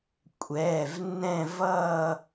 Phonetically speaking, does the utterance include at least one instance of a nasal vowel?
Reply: yes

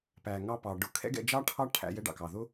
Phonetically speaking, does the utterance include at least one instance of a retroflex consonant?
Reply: yes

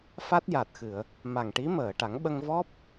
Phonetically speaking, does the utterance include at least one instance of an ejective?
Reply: no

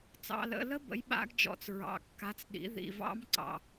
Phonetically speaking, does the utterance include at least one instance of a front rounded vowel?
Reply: no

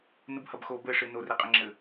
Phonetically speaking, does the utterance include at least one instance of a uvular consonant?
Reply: yes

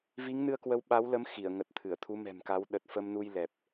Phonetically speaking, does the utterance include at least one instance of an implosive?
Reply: yes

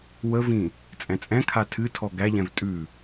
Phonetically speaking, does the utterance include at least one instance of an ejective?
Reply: yes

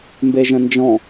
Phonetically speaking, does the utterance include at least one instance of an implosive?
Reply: no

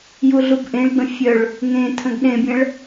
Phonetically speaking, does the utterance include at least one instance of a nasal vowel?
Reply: yes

